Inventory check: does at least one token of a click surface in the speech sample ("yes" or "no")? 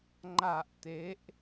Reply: yes